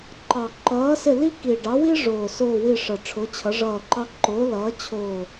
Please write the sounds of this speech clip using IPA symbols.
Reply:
ǃ ɑ˨˩ ǃ ʌː˨˥ s ɪ˦˨ l i˥ k i˨˩ ɖ ɑ˨˥ w i˥ ʐ ʊː˨˩ s ʊː˦˨ w i˦˨ ʂ ʌ˨˩ ʈ͡ʂʰ ʊ˨˥ t͡ɕʰ ʌ˨˥ ʐ ʌː˦˨ ǃ ɑ˥ ǃ ʊː˨˥ l ʌː˨˥ t͡ɕʰ ʊː˦˨

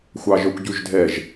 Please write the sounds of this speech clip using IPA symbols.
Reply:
xʷ ɑ ʒ œ kʷ ɟ ʉ ʒ dʱ ɛ ʒ

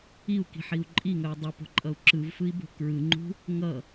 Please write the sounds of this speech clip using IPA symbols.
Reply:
i u̯ k i̤ ħ i u̯ ǃʼ i ŋ œ dˤ u p o̤ ǃʼ ʌ u̯ ǁ ɯ v f ɯ i̯ b o̤ k ɹ ɯ ŋ͡ǃ ṳ | ŋ ʌ

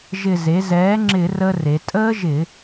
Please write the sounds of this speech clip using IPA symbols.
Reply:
ʒ ɪ˧˩ z e˩˥ z ɛː˩˥ ŋ͡ǁ ɪ˧˩˧ r ə˦˥ r e˩˧ tʼ əː˦˥ ʒ ɪ˧˩˧

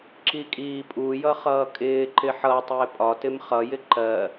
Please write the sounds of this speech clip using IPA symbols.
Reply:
ǁ i kʼ iː pʼ u j ʌ χ ʌː kʼ ɪː ǃ ɪ ħ ʌ tˤ ɪː pʼ ɒ t ɪ m χ ʌ j ɪ ǃ ɜ

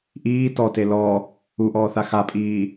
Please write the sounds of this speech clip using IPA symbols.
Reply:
ʔ iː t ɔ t e l ɔ | u ʔ ɔː θ a x a pʼ iː

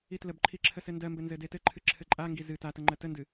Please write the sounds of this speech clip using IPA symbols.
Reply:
i t l ə b ǃʰ i ǁʰ ə s ɘ n d ɜ m b ɘ n z ɘ d e t ɘ ǃʰ ɨ ǁʰ ɘ ǃʼ a ŋ ɡ i z ɨ t a t ə ŋ͡ǃ ɜ t ə n d ɨ

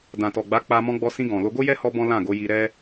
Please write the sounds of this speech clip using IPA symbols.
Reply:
d ã˨ t ɔ˨ ɡ͡b a˨˦ k͡p a˧ m ɔ̃˧ ɡ͡b ɔ˧ s ĩ˧ ɡ ɔ̃˨ l o˧ ɡ o˦ j ɛ˦ h ɔ˦ b ɔ̃˦ l ã˦˨ ɡ o˨˦ j i˧ ɾ ɛ˦

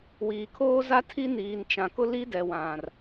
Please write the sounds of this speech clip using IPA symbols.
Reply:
w iː˨ kʰ oː˦ z a˦ tʰ i˦ n iː˨ n t͡ʃ ã˨ k ʊ˦ l i˦ d ɛ˨ w ã˨ r

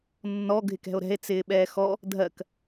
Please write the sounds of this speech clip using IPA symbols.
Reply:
nː ɔ ɡʱ ɪ k ɛ̤ o̯ ɾ ɛ̤ e̯ t͡s ɪː ɓ ɛː x ɔ | dʱ ɜ k

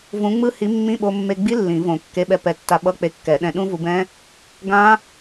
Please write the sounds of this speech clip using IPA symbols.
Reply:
v ũ˨˥ ŋ͡m ɯ˦˥ h i˨˥ mː ĩ˧˥˧ ɓ o˧ mː e˧ ɡ͡b i˦˥ lː ĩ˨˩˦ v õ˨˩˦ kː e˨˥ ɓ ɛ˧ p ɛ˨˥ tː a˧ ɓ ʌ˧˥˧ k͡p e˧ kː ɛ˨˩˦ ɗ ɛ̃˧ ɗ ũ˦˥ v u˧ b ɛ̃˦˥ | ɡ ã˦˥

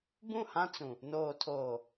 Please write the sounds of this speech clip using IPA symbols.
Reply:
b ũ˦˨ h ã˦ t͡s ũ˨ | n oː˨ tʰ oː˨

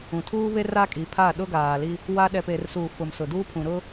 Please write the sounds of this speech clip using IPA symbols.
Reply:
ũ˨ tʰ uː˦ β e˦ r a˦ kʼ i˨˦ pʰ a˦˨ ɗ ʊ˦ ɡ aː˨ l i˦ | w a˦ ɗ ɛ˨ p e˨ r s uː˨ f ʊ˨ m s ʊ˨ d uː˦ pʰ ũ˨ ɾ ʊ˦

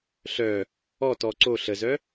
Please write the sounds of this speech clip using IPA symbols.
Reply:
ɬ œ | ɔ t ɔ ǀ o ɬ ə z œ

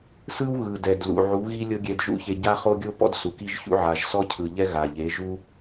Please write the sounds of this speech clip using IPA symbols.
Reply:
s ɯ˦ w ɣ ɯ˨ d ɛ˨ d l ṵ˨ ʕ u˨˦ ɣ i˦ lʲ ɤ˦ ɡʲ ɛ˧ d ʒ ṵ˦ ç e˧ ɟ a˦ χ o˦ ɡʲ o˦ p ɔ̰˦ d s u˨ k i˦ ʒ ç ṵ˦ ʕ a˨ ʒ s ɔ˦ cʰ ɯ˨ ʎ ɛ˦ ɣ a˨ ʎ e˨˦ ʒ u˦

